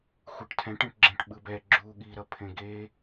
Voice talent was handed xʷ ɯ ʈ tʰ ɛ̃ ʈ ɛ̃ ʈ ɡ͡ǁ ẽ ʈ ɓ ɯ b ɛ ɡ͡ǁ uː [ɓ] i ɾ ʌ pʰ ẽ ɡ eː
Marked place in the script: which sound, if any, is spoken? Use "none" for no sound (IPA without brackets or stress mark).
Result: ɠ